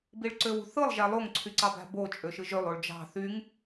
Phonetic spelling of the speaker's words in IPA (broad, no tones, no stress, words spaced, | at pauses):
biɭǀøwṳθɯlˠ ʒælˠoŋ ǀʰyǀɑbæ̤bo t͡ʃʼøʃɯʒølˠ oɭd͡ʒɑ̤ θyŋ